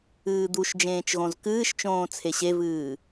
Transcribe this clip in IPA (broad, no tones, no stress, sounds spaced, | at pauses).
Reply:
ɨː d̪ u ʃ d͡ʒ ẽː t͡ʃ ɣ õ z k ɨː ʃ t͡ʃ õː t͡sʰ e ɕ e v ɨː